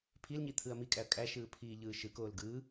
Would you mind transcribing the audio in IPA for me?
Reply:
pʰ i l ɲ i t̪ʰ ɯ ɐ̯ m i kʼ æ ɐ̯ kʼ æ ʃ ɯː pʰ iː ʎ ɯː ʃ ɯ k oː l ɡ ɯː

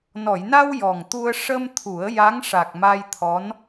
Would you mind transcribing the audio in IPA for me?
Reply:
n ɔ˨˩˨ j n a˧ w j ɔ˨˩ ŋ t̪ u˧ ə̯ ʂ ə˧ m t̪ʰ u˨˩˦ ə̯ j a˧˥ ŋ ʂ a˨˩ k̚ m a˧ j t̪ʰ ɔ˧˥ n

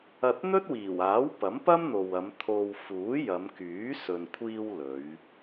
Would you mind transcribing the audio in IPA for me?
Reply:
ɐ˧ t̚ n̪ ɵ˥ t̚ w iː˨˩ w aː˨˥ w p ɐ˨˥ m p ɐ˥ m n̪ o˨ w ɐ˨˧ m t̪ʰ o˧ w f uː˨˥ j ɐ˨˧ m k yː˨˥ s ɵ˨ n kʷʰ iː˧ w l ɵ˨˧ ɥ

